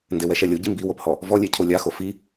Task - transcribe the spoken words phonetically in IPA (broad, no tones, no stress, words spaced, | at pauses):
ndewɛʃɛlʲo ɟimbiwophɔ | vɔlʲe cʰolʲaxo fi